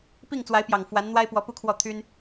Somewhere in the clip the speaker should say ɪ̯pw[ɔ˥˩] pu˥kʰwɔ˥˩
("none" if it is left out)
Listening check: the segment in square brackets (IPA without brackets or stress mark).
ɔ˧˥